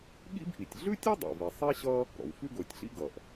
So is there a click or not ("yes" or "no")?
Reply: no